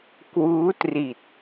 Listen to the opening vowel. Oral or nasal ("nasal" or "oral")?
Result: oral